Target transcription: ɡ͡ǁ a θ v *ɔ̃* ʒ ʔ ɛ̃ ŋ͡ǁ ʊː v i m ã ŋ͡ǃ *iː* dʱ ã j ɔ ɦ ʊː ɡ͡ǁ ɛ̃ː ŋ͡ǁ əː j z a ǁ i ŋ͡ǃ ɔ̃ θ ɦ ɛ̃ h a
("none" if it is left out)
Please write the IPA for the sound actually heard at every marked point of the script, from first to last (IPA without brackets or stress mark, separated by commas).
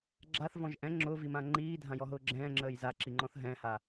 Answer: ɔ̃, iː